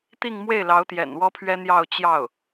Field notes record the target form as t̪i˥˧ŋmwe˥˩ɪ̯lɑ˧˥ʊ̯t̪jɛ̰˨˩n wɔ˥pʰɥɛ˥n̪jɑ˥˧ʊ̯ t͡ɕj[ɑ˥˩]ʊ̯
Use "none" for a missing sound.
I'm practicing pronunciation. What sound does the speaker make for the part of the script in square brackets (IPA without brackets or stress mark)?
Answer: ɑ˥˩